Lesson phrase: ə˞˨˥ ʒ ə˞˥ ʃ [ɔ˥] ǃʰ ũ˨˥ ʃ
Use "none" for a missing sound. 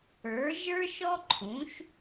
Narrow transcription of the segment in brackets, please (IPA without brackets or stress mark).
ɔ˥